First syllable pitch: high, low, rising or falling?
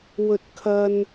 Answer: high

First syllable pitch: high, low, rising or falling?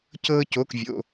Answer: high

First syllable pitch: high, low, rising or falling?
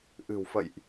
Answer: low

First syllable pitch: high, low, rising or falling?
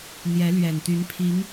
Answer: rising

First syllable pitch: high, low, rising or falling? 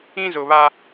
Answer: high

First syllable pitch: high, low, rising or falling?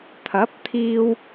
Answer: rising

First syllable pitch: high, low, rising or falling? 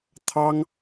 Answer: high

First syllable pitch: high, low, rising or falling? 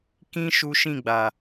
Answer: high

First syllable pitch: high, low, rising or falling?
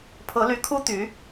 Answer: rising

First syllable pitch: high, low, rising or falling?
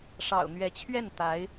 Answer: low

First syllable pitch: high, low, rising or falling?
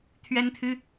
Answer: high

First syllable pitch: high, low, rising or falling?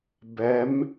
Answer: rising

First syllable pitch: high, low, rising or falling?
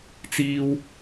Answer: high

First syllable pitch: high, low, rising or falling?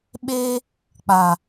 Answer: high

